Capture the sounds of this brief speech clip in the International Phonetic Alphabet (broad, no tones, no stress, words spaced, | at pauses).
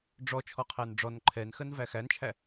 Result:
ɖ͡ʐɔ t͡ʃʰɔqʰænɖ͡ʐɔn ǃʰɛnxɜn væxænt͡ʃʰæ